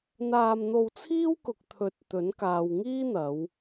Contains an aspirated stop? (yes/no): yes